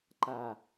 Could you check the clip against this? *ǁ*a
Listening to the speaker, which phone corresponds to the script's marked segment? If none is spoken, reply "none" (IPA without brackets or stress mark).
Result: ǃ